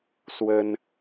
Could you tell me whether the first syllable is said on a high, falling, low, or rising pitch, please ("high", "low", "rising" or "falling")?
high